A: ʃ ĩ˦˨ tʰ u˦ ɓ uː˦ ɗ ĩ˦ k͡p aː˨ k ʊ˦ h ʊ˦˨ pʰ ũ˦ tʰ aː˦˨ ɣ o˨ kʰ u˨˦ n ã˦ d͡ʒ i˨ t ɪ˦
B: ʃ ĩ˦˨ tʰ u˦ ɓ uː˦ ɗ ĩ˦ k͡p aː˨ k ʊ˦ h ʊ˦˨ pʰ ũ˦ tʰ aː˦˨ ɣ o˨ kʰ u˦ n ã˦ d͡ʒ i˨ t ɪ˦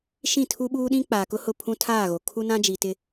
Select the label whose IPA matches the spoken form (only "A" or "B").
B